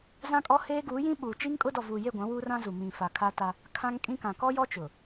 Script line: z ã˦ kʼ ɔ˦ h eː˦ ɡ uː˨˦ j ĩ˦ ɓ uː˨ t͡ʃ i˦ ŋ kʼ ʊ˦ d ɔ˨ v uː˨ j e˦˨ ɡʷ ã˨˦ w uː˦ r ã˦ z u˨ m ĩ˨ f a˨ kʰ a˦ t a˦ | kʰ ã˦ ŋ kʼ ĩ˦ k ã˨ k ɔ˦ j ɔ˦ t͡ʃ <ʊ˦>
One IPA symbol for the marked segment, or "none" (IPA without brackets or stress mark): ʊ˨